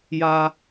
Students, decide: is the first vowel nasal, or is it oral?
oral